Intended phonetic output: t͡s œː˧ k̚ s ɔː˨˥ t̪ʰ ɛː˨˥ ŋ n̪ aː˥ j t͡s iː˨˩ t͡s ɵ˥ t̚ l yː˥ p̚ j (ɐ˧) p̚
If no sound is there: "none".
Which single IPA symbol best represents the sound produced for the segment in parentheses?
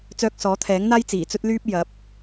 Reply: ɐ˨˥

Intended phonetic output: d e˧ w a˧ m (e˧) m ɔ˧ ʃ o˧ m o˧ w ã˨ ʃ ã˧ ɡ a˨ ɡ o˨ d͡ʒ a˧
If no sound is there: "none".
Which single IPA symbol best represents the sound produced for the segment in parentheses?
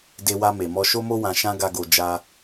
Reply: e˨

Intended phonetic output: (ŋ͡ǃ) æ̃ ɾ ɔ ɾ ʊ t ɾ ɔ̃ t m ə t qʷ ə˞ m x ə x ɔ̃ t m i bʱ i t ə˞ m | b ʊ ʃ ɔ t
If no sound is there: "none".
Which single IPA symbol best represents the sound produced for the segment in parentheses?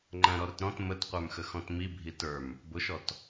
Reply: ŋ͡ǃ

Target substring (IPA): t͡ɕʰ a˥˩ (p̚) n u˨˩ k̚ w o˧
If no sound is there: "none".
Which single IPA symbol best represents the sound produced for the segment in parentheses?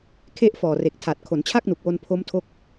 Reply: k̚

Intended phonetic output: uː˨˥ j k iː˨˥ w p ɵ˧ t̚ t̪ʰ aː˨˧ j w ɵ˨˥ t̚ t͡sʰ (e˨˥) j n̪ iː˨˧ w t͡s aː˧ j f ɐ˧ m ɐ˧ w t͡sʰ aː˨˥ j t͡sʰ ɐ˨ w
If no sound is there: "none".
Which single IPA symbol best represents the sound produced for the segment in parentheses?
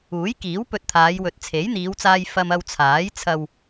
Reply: e˨˥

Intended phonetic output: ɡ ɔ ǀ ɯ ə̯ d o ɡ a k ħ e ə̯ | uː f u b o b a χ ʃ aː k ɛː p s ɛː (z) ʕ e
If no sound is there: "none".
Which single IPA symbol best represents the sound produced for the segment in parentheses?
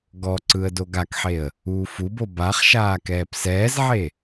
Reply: z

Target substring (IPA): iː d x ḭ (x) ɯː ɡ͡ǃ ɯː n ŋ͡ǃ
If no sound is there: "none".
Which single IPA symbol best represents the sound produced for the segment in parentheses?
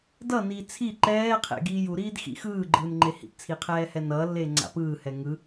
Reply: x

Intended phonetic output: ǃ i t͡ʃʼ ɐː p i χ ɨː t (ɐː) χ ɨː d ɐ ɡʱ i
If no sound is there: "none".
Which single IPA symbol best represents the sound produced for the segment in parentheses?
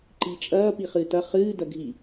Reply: ɐ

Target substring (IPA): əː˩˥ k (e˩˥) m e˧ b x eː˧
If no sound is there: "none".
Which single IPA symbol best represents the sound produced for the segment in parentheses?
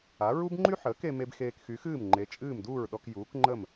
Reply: e˧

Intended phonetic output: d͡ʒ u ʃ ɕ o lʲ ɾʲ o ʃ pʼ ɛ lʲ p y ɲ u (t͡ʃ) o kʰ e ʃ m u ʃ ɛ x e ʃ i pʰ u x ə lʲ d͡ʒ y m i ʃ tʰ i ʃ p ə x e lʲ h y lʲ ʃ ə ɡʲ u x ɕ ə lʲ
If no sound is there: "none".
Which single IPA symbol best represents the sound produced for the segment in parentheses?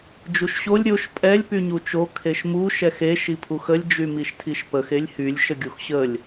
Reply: t͡ʃ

